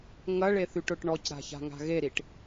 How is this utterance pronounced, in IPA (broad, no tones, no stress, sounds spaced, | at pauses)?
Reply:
ŋ ɐ ɭ e θ y ʈ ʊ ʈ ɳ ɔ c ɾ a̤ ç a̤ ŋ a̤ ɣ e ɾ i ʈ